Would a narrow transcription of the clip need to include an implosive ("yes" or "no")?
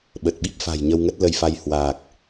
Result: yes